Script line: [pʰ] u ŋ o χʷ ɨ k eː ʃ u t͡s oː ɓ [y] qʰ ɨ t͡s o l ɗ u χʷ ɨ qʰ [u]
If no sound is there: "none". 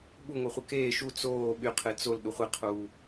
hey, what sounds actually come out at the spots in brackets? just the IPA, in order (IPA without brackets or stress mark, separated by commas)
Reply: ɓ, y, uː